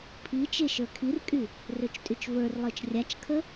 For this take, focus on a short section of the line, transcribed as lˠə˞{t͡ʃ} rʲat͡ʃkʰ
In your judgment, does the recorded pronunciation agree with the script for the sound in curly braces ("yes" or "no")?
yes